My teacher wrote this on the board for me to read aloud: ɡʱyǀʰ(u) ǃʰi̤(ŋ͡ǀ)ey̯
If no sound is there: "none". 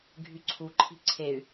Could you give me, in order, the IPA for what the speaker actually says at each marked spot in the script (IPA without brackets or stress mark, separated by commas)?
u, ǀʰ